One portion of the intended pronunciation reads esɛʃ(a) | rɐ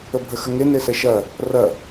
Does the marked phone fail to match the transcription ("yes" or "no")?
yes